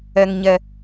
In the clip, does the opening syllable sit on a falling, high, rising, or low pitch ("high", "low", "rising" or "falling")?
low